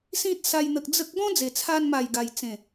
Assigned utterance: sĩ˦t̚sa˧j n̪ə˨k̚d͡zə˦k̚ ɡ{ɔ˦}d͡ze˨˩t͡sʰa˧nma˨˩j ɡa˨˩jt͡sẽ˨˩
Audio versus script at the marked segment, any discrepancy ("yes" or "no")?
yes